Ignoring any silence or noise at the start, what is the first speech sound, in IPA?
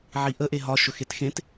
ʕ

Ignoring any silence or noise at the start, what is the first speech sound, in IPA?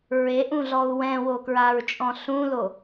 ɹ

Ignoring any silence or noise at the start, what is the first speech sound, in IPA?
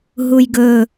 ɦ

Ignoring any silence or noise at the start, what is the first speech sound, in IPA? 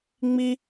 ŋ͡m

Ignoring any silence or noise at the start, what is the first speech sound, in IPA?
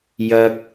j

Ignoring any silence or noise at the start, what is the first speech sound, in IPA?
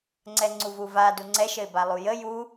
ŋ͡ǀ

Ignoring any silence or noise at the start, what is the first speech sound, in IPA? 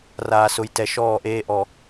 r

